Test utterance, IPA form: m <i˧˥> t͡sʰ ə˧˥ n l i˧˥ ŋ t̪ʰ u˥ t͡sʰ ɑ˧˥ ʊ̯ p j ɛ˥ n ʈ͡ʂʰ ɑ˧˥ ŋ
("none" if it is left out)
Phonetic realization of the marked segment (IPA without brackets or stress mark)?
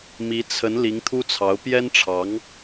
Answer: i˧˥